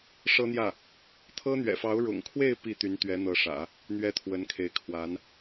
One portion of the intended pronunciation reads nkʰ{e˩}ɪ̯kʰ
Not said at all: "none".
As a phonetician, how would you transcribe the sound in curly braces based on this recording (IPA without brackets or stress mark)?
e˧˥